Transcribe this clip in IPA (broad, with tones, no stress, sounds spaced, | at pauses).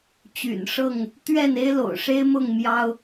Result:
t͡ɕ y̰˨˩ n ʂ ɤ˥˨ ŋ | t̪ ɥ ɛ˥˨ n e˦ ɪ̯ l o̰˨˩ ʊ̯ ʂ e˦ ɪ̯ m ʊ˥˨ ŋ m j ɑ˦ ʊ̯